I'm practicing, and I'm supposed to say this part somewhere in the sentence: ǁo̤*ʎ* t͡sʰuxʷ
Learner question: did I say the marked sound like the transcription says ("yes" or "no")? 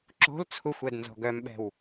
no